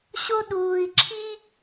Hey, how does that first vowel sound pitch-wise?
high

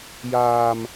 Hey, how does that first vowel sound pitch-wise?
low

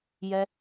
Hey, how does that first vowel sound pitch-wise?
high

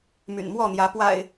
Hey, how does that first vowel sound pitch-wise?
low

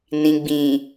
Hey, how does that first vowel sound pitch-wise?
low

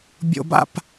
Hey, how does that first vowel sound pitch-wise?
high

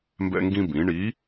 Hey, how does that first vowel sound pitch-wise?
high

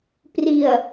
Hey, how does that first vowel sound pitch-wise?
low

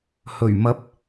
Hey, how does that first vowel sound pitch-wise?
low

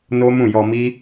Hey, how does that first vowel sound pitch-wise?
high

